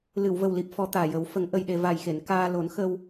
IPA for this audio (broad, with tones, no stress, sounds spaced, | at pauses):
l ɨ˨˩˨ w v ə˨˩ w l i˨˩ p̚ f ɔ˧ t̪ aː˨˩ j ə˨˩˦ w f ə˨˩˦ ŋ ʔ ə˧ j ɗ e˧ v a˨˩ j x e˨˩˨ n k aː˧ l o˨˩˦ n x ə˧ w